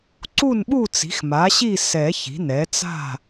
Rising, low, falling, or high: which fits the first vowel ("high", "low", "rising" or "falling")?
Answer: falling